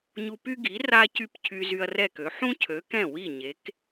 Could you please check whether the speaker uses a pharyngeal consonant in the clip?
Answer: yes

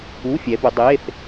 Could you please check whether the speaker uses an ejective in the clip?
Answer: no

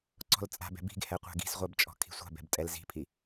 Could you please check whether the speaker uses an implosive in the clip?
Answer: no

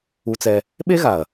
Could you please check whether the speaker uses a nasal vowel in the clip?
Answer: no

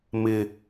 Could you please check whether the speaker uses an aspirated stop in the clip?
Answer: no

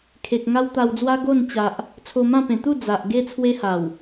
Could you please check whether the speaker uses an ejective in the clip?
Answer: no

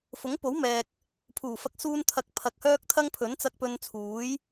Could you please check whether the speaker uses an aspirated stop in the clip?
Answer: yes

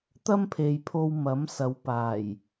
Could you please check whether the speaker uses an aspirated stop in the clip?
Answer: yes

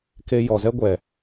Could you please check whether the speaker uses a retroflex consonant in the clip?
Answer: no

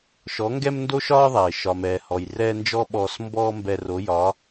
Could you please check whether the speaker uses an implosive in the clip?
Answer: yes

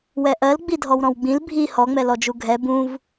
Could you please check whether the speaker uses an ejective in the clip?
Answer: no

